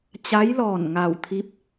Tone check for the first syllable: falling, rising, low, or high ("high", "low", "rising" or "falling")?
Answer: rising